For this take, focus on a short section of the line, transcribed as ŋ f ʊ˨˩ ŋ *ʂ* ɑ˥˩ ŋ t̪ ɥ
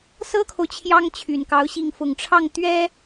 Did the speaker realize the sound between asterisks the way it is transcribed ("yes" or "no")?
no